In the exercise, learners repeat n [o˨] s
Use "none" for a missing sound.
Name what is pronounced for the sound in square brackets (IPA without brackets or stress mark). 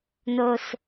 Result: o˨